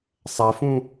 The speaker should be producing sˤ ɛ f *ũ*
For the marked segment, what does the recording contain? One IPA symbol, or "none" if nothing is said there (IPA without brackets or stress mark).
ũ